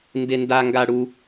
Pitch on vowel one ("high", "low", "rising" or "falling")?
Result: high